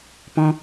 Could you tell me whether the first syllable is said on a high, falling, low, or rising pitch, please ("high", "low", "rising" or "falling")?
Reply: high